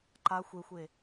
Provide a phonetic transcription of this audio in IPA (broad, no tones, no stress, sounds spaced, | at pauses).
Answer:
ǃ a xʷ e xʷ e